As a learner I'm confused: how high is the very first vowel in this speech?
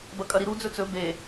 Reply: low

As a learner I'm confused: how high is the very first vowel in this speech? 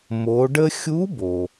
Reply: mid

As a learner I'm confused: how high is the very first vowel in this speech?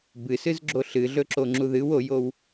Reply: high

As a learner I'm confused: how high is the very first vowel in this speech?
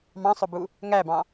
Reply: low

